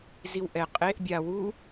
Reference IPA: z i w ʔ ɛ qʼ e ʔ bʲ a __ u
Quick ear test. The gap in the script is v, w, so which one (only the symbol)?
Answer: w